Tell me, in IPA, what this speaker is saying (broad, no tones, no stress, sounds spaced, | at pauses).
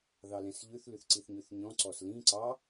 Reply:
ð ɑ l ɛ̃ s ʎ ʉ θ l ʉ θ ǀ i θ ɲ ʉ θ ɲ ɔ̃ ǀ ɔ s l ĩ ǀ ɑ